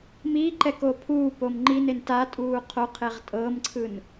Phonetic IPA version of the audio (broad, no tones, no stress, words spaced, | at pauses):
miǃɛkoː pʰuːpom ŋ͡ǃinen tatʼuː qʰoqʰeʁ tʼɤːmǀʰɯn